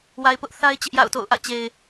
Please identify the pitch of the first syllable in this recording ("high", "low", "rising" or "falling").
low